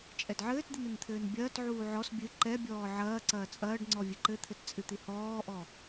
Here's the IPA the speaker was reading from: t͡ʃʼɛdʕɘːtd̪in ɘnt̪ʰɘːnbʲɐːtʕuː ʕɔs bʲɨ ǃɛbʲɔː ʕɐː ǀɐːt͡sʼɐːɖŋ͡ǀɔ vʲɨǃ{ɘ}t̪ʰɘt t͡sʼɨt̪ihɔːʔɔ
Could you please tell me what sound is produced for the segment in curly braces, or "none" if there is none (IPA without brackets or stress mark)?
ɘ